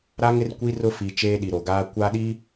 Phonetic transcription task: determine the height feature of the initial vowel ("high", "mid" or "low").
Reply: low